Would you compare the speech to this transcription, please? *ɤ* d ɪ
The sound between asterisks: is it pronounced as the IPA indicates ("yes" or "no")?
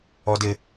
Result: no